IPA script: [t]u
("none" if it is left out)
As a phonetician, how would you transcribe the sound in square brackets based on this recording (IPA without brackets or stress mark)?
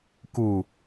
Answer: k